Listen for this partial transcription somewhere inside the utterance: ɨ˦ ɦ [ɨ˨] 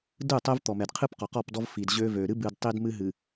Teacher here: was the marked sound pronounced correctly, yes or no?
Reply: yes